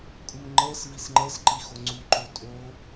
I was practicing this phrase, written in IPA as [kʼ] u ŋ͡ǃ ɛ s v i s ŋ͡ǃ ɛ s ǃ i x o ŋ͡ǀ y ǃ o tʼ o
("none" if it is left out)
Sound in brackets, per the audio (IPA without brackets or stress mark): kʼ